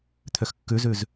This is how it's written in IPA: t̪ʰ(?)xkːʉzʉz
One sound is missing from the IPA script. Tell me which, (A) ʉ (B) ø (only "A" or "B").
B